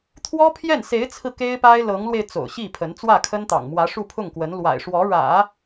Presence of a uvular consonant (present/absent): absent